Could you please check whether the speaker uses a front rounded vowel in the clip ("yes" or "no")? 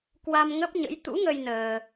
no